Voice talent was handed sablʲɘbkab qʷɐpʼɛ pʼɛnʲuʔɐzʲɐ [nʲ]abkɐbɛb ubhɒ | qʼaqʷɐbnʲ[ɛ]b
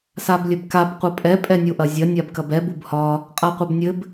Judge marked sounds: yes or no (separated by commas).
yes, no